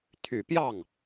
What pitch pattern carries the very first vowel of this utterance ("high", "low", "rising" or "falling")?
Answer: low